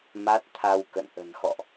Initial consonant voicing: voiced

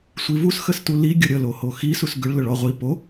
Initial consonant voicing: voiceless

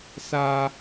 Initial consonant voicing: voiceless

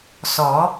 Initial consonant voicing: voiceless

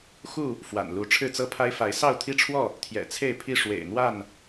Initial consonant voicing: voiceless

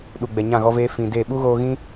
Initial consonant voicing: voiced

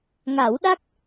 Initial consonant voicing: voiced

